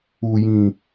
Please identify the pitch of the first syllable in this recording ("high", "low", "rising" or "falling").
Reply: low